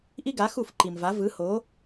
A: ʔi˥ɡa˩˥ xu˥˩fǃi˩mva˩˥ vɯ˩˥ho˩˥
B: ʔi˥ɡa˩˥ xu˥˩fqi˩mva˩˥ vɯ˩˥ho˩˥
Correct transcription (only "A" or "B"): A